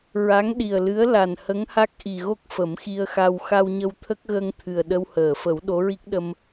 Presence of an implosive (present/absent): present